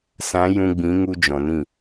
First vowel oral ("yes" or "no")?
no